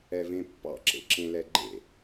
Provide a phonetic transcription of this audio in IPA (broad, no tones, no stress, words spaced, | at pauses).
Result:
ɛvẽpːɑ̰ǁḛ ǁẽlɛɡ͡ǃḛ